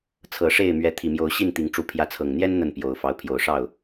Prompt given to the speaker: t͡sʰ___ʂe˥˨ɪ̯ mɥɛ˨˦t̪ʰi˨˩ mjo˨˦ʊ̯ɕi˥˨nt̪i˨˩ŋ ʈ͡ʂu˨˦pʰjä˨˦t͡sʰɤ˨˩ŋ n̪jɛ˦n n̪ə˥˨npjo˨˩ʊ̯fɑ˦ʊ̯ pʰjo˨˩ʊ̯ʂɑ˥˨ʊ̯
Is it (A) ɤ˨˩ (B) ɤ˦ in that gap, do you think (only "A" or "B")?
A